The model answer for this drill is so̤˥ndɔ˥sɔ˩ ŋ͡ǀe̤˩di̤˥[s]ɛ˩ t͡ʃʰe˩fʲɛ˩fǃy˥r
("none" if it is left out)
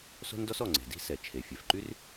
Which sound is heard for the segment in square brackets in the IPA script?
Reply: s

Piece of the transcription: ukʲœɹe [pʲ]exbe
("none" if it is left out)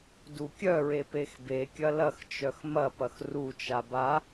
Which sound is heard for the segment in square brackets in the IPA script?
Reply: p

